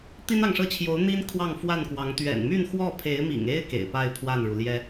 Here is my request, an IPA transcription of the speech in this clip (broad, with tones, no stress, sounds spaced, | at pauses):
t̪ i˥ n ɑ˨ ŋ ʂ ɤ˥˩ t͡ɕʰ j o˧˥ ʊ̯ n̪ i˥ n kʰ w ɑ˥˧ ŋ f w a˥˩ n k w ɑ˧˥ ŋ t̪ ɥ ɛ̰˨˩ n m y˥˧ n x w ɔ˥˩ pʰ e˧˥ ɪ̯ m ḭ˨˩ ŋ e˥ ɪ̯ k ḛ˨˩ ɪ̯ p a˥˧ ɪ̯ pʰ w a˥˩ n ɻ u˩ l j ɛ˥